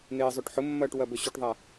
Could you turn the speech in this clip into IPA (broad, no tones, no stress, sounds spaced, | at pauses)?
n eː zˤ ɵ ʈ ħ ʊ mː ɐː ʈ w ɐ b ɵ ɕ ɵ ʈ ðˤ a